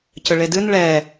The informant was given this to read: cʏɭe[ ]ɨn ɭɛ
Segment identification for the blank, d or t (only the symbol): d